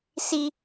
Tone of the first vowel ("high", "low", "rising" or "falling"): high